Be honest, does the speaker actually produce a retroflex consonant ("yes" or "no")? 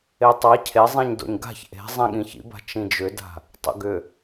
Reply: no